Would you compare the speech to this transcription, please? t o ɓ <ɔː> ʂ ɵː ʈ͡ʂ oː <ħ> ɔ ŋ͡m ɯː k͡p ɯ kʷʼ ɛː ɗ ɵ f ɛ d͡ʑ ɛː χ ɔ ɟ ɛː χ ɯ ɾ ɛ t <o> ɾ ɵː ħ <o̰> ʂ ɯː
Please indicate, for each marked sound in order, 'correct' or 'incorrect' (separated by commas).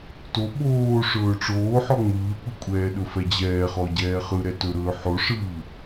incorrect, correct, incorrect, incorrect